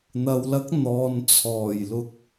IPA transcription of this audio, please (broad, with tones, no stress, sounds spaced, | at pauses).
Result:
n̪ ɐ˨ w l ɐ˨˥ k̚ n̪ ɔː˨ n t͡sʰ ɔː˨˩ j l ʊ˨˥ k̚